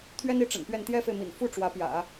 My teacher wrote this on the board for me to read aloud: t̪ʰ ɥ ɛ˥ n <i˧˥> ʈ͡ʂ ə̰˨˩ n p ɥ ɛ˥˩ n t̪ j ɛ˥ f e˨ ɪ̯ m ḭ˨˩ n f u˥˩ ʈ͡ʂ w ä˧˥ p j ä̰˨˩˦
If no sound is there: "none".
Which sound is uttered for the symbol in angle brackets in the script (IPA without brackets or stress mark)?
i˧˥